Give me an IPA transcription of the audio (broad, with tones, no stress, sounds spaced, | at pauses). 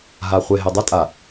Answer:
ɦ a˨ χʷ e˨ ɦ e˨ dˤ a˦ tʼ a˨